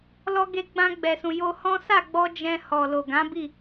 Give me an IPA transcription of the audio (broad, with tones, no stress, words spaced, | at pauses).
lɔ˧ɡe˧ ɡ͡bã˧ɡ͡bɛ˨sũ˨ jo˧hɔ̃˦ sa˦˨ɡ͡bɔ˧ d͡ʒɛ̃˧hɔ˨ lo˨ɡã˨˦bi˦˨